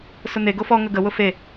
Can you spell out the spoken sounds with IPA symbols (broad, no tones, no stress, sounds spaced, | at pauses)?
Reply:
s ʊ n̪ e ɡ o f ɔ ŋ ə ɡ ə w ʊ f e